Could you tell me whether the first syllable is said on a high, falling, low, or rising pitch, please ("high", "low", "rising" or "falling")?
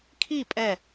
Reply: falling